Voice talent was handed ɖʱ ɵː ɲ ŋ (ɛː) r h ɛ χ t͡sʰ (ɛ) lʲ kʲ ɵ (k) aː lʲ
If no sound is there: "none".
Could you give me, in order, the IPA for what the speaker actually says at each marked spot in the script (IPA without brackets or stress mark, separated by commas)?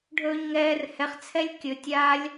ɛː, ɛ, tʲ